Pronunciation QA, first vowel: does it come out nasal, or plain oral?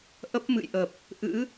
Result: oral